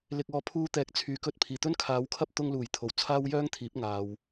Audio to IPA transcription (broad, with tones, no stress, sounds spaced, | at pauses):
l ɪ˨ k̚ ɔː˨ pʰ uː˧ t̪ ɛː˨˥ k̚ t͡sʰ yː˨˩ k ɵ˧ t̚ pʰ iː˨˩ t̪ ɵ˥ n kʰ aː˨˧ w kʰ ɐ˥ p̚ t̪ ʊ˧ ŋ l uː˨˩ j t̪ʰ o˨˩ w t͡sʰ aː˥ w j œː˥ ŋ t̪ʰ iː˨˥ p̚ ŋ aː˨ w